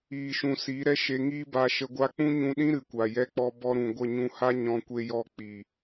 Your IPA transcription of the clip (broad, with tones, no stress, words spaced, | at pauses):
iː˨ʃũ˨ siː˨˦ɾɛ˦ʃe˧ ŋiː˦ba˧ʃə˧ɡʷa˦ k͡pũ˦ɲũ˧ɗĩ˦ ɾɨ˨kʷa˨jɛ˧k͡pɔ˧ bɔ˧ɾũ˨ ɡʷə˦˨ɲũ˧ha˦ ɲɔ̃˧ kʷe˧jɔ˧k͡piː˨